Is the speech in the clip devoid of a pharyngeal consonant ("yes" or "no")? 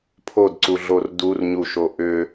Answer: yes